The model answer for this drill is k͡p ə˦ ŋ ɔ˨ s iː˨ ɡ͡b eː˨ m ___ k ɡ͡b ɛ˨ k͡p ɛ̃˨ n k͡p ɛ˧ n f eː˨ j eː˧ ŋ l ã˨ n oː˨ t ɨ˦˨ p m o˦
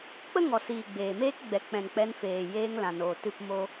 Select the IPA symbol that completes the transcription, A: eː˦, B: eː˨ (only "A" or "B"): A